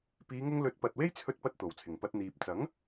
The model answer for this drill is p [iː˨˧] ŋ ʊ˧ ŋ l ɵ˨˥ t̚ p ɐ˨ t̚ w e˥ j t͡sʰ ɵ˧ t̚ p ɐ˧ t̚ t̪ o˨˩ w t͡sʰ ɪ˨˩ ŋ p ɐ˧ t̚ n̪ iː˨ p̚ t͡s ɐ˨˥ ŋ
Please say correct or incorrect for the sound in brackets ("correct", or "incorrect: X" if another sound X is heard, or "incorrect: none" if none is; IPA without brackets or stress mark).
correct